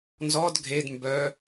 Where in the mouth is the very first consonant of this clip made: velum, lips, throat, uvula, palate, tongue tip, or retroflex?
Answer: tongue tip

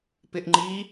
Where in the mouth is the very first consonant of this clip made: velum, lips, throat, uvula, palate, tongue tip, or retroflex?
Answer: lips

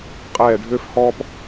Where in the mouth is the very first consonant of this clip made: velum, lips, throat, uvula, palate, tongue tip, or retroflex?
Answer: uvula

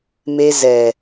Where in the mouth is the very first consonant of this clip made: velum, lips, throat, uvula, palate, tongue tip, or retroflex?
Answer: lips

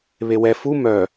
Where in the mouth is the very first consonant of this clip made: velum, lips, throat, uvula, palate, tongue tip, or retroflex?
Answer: lips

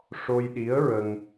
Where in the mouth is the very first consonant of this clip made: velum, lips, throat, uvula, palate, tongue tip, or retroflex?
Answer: retroflex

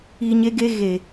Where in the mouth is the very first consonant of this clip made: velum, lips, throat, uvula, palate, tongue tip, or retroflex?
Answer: palate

